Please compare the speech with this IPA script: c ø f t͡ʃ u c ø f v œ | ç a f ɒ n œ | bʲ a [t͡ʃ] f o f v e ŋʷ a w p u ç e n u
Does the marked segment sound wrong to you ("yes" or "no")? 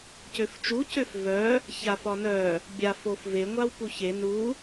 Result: yes